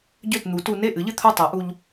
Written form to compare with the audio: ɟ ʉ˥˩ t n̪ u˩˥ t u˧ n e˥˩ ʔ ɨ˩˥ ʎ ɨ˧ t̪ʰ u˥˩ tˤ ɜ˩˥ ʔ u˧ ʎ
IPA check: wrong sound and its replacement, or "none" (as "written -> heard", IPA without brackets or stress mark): ʉ˥˩ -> ø˥˩